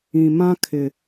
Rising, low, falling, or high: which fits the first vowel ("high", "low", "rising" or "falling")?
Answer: low